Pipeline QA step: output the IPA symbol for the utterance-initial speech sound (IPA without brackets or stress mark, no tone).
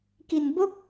k